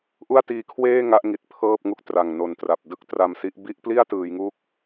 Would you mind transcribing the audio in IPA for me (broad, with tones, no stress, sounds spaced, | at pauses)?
ʔ u˥˩ a̯ t iː˧ kʰ w eː˥˩ ŋ a˦˥ ʔ ŋ i˨˩ t̚ pʰ ɤː˥˩ p̚ ŋ u˥˩ k̚ t r a˨˩ ŋ n o˨˩ n t r a˨˩ p̚ d ɯ˥˩ k̚ t r a˧ m s i˦˥ ʔ b i˥˩ ʔ p l i˥˩ a̯ t ɯː˩˦ j ŋ u˦˥ k̚